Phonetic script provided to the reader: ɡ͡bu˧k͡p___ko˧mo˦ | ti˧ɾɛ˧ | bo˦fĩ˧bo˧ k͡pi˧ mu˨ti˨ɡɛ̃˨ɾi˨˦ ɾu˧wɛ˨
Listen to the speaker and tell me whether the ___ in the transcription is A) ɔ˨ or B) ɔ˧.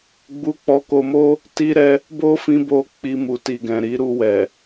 B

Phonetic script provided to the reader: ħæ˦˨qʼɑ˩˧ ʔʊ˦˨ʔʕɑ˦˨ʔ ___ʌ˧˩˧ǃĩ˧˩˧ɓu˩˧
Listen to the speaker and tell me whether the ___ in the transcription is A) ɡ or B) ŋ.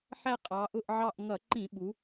B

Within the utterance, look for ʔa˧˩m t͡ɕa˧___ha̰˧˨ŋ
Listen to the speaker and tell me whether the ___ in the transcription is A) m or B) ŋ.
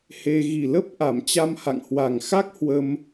A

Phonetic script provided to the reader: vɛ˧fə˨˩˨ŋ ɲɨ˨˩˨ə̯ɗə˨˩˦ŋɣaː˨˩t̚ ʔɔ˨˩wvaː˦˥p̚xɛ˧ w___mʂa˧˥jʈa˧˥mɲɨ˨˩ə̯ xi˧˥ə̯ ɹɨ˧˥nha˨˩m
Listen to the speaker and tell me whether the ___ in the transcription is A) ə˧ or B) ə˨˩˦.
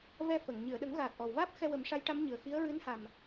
B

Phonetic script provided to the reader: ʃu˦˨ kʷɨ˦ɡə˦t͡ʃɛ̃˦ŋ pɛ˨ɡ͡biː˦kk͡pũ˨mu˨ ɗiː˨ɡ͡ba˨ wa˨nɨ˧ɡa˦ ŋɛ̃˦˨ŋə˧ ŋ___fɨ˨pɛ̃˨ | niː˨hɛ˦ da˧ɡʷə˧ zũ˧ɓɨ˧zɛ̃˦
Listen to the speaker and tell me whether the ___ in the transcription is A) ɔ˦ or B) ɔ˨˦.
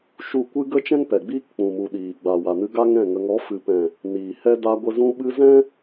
B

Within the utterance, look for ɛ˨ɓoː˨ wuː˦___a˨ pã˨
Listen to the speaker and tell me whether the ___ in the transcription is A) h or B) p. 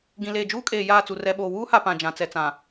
A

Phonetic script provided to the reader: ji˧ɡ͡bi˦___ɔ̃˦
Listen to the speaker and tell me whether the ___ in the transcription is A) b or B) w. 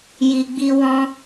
B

